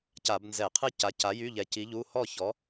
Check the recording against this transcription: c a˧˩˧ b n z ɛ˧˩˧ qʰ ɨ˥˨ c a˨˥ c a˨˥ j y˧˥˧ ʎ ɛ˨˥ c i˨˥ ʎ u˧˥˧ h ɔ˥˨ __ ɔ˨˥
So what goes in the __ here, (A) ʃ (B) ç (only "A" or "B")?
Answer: B